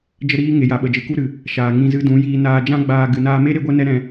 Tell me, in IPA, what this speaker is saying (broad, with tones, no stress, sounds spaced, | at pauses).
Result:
d͡ʒ ə˦ ɾ iː˦ ŋ e˨ j a˨ ɓ ə˨ d͡ʒ ɨ˨ k u˦ ɾ ɨ˨ | ʃ aː˨ ŋ ĩ˧ z ɨ˧ d ũ˨˦ j iː˧ n aː˧ d͡ʒ ã˦ ɡ͡b aː˧ ɡ ɨ˨ n aː˧ m e˦ ɾ e˦ ɡʷ ɛ˦ n ɛ˦ ɾ ɛ̃˧